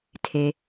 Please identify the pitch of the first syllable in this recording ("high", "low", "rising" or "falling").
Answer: low